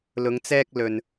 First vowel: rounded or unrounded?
rounded